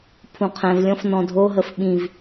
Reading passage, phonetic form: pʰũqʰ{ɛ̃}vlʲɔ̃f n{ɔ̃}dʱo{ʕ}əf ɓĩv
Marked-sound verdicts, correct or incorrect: correct, correct, incorrect

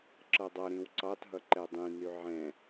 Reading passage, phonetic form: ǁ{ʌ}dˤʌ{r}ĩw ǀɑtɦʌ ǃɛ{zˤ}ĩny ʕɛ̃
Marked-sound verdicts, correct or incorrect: correct, incorrect, incorrect

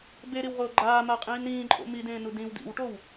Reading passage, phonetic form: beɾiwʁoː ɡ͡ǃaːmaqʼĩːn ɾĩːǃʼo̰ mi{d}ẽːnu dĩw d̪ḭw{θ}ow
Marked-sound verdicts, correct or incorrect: correct, incorrect

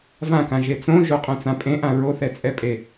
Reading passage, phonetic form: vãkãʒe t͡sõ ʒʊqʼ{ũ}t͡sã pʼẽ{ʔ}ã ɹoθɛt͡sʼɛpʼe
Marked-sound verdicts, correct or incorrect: incorrect, correct

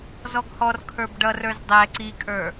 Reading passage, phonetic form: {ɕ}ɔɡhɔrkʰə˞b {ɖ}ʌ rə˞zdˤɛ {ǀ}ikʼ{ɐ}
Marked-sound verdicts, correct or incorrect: incorrect, correct, correct, incorrect

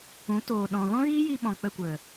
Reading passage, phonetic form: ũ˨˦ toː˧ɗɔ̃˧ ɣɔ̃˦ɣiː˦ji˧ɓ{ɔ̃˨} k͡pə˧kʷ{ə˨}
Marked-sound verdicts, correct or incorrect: correct, correct

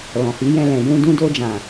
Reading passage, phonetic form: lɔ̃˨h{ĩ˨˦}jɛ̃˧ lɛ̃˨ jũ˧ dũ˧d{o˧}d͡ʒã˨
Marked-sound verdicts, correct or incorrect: incorrect, correct

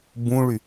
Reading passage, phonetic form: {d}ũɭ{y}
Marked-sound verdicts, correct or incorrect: incorrect, correct

